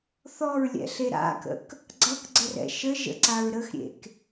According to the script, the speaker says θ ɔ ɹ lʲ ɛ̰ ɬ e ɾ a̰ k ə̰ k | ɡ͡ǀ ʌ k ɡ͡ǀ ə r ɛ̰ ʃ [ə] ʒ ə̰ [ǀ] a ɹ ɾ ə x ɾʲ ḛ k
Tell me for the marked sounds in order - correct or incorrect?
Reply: correct, correct

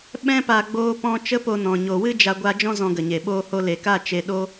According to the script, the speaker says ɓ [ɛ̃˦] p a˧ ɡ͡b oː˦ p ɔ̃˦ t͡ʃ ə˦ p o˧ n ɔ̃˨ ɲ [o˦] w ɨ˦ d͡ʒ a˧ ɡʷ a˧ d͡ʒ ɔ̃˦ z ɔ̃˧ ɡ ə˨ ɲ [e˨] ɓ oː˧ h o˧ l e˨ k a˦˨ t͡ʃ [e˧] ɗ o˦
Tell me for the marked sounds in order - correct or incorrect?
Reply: correct, incorrect: o˨, correct, correct

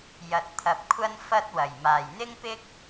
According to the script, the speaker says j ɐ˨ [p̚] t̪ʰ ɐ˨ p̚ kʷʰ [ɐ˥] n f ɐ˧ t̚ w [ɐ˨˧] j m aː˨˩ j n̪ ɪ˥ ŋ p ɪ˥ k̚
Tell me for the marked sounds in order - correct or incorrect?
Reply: incorrect: t̚, correct, incorrect: ɐ˨˩

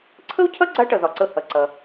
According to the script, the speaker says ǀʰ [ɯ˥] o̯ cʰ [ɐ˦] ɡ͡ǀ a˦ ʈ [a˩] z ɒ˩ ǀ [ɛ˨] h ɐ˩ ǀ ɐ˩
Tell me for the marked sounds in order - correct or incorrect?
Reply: incorrect: ə˥, incorrect: ɐ˥, incorrect: ɐ˩, incorrect: ə˨

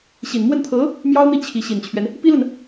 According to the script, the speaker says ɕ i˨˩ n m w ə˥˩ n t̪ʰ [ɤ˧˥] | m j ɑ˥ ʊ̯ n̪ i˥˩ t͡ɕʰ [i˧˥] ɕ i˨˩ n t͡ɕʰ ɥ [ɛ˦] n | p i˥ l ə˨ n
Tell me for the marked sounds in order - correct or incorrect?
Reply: correct, correct, correct

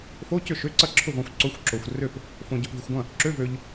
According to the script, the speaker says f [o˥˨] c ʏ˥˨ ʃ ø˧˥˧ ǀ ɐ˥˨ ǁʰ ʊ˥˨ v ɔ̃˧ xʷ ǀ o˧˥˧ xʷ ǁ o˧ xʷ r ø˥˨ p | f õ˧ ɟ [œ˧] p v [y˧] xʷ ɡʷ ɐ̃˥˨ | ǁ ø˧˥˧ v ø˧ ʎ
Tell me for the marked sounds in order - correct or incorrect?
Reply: incorrect: o˧˥˧, correct, correct

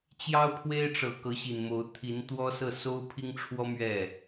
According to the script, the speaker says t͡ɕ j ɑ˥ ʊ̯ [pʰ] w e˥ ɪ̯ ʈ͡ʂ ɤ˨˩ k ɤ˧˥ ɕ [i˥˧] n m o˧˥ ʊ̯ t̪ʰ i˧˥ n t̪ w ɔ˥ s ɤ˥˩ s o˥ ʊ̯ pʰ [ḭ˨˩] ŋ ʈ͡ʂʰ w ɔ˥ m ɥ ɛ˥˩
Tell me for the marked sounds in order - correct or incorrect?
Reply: correct, incorrect: i˨˩, incorrect: i˥

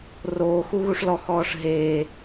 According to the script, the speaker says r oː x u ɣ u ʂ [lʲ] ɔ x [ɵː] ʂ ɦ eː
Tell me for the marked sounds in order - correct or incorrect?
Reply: incorrect: l, incorrect: ɔː

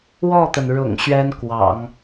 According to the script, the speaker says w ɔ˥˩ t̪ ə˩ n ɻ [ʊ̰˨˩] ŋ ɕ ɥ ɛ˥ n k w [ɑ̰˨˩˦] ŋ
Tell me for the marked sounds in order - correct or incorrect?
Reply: correct, correct

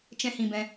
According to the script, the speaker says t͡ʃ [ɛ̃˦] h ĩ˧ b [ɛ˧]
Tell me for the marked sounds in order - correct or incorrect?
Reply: correct, incorrect: ɛ̃˧

